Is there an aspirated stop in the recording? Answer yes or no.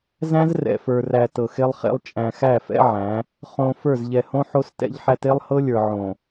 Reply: no